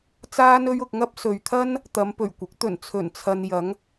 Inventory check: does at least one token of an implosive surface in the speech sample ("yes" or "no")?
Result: no